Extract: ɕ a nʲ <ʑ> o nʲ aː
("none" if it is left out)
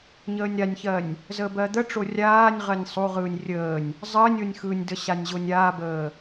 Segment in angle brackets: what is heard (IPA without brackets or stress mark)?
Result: ʑ